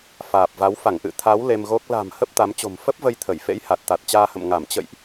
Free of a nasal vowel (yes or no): yes